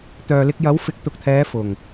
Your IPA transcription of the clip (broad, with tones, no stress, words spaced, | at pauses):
t̪œː˨lɪ˧k̚jɐ˨˥wfɪ˨˥k̚ t̪ʊ˨k̚t̪ʰɛː˨˧ fʊ˨˩ŋ